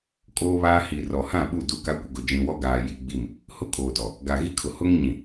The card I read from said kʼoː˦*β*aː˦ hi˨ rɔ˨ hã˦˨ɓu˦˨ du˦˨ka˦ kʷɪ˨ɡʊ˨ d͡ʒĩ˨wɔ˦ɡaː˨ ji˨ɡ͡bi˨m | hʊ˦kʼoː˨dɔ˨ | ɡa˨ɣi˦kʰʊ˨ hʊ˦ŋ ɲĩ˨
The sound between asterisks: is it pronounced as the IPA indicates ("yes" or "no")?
yes